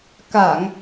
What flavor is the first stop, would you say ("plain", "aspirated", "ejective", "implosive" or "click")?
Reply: plain